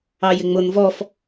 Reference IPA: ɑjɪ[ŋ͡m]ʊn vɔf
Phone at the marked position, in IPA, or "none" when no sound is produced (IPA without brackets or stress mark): ŋ͡m